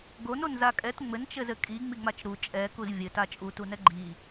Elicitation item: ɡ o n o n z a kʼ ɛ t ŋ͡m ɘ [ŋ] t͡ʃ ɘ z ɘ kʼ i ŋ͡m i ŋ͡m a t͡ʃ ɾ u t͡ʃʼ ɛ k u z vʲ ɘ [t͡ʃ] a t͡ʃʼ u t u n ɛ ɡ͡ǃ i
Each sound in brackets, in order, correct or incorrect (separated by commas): incorrect, incorrect